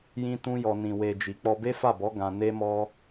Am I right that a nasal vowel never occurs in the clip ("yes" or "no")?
no